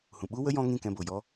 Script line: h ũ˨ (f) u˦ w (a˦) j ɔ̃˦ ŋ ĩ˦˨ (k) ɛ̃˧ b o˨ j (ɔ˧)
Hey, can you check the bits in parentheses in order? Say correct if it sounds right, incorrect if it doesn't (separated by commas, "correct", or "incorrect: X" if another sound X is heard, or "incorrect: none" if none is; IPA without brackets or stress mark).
incorrect: ɓ, incorrect: ə˦, correct, incorrect: ɔ˦